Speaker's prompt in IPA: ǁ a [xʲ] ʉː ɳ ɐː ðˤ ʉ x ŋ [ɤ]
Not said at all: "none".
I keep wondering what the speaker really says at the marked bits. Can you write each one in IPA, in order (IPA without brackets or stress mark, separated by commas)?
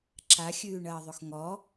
xʲ, ɔ